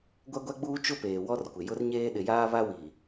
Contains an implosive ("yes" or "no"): yes